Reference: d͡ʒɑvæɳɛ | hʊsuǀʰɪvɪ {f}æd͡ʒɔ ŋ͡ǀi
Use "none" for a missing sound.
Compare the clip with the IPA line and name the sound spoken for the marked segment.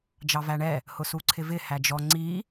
h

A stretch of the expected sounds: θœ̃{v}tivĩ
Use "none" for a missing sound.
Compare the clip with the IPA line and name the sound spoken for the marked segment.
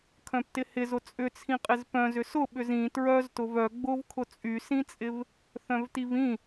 v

